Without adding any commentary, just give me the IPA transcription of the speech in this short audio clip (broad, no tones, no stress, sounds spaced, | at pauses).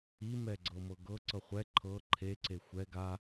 i m ɛ ɡ͡ǀ ɤ m ɤ ɡ ɤ ǀ ɤ χʷ ɛ ǃʰ ɤ ǃʰ e ǀ e xʷ ɛ ɡ a